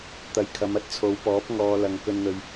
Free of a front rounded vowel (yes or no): yes